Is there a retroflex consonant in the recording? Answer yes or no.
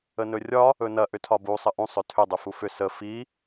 no